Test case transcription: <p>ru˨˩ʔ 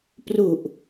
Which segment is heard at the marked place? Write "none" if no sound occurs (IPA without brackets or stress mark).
p